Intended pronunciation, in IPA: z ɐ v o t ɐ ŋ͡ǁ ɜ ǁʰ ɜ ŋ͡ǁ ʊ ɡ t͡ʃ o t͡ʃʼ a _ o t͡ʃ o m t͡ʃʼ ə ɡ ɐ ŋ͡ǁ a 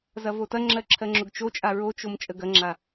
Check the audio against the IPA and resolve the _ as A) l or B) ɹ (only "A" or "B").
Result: B